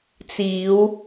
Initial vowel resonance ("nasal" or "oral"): oral